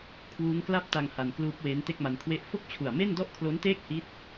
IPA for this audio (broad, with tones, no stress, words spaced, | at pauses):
kʰwuː˦˥ŋkla˥˩p̚ta˧ŋ ha˧nkluː˦˥p̚weː˦˥n te˥˩k̚ma˧nkʰwe˥˩ʔ fo˥˩k̚t͡ɕʰu˨˩a̯me˥˩n dɔ˥˩ʔkʰlo˦˥nteː˥˩k̚ hi˦˥t̚